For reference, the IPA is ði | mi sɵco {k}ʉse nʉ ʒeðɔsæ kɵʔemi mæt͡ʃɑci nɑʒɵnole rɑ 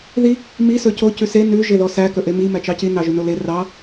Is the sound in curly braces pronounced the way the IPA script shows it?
no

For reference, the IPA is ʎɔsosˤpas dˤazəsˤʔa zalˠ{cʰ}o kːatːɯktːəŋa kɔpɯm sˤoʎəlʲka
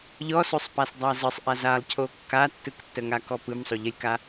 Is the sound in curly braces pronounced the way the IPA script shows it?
yes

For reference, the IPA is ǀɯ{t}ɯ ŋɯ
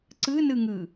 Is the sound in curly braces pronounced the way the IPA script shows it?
no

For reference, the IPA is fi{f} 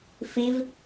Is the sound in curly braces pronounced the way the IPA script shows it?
no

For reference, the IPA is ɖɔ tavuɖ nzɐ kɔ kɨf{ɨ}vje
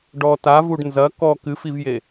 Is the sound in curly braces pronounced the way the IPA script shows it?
no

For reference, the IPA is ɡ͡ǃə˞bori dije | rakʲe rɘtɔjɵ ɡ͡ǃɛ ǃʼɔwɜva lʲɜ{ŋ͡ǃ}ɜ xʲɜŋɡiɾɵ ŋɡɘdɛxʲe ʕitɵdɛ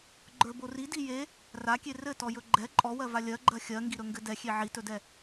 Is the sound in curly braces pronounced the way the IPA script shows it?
no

